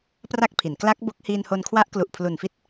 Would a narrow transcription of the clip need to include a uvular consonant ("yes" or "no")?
no